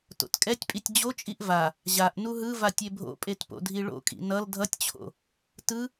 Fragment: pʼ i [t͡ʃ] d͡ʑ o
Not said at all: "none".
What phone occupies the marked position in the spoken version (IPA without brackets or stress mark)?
tʲ